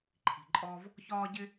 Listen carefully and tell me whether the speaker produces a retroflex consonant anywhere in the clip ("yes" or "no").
no